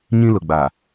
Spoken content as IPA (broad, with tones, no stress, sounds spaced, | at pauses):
ɲ ĩ˦ l ʊ˨ ɡ͡b aː˨